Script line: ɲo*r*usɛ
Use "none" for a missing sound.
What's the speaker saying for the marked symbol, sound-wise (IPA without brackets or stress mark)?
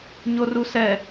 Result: r